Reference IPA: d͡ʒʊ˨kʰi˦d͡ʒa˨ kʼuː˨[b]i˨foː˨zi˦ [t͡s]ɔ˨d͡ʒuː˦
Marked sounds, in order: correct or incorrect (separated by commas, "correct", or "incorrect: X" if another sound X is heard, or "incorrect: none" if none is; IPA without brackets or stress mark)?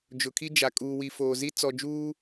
incorrect: w, correct